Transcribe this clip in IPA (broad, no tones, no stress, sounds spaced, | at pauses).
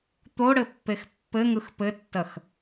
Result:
t̪ o ɽ ɘ pː e x pː ɘ ŋ ɯ x p ɘ tː ɐ x